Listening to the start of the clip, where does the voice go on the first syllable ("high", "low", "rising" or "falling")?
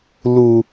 low